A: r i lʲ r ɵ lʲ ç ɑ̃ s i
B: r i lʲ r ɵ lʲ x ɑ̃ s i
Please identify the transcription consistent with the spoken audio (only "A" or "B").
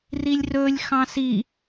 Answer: B